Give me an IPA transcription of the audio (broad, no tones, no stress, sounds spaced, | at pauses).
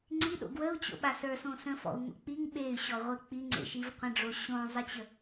ŋ͡ǀ i ɗ o̰ ɡ w ə u̯ t͡ɕ o̰ ɓ a s ə˞ s õ s ə̃ f ɔ̰ u̯ ŋ o̰ k͡p i ŋ ɓ e y̯ ɕ ɔ ʁʷ e k͡p i ŋ͡ǀ ḛ ʃ i v qʷ ə̃ ɖ͡ʐ o ɕ õ zˤ i t͡ɕ ə